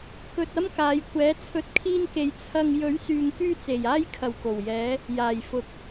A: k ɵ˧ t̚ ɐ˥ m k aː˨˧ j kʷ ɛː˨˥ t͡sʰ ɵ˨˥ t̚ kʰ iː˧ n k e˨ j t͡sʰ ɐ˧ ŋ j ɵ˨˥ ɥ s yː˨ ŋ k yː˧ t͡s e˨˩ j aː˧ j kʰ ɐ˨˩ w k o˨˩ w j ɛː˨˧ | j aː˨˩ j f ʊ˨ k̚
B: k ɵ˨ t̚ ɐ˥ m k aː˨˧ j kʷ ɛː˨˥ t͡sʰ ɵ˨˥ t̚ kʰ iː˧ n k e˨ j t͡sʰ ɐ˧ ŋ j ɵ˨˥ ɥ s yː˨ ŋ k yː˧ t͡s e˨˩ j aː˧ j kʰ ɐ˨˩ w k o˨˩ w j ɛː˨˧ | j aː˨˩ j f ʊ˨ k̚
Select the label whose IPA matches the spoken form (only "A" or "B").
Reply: A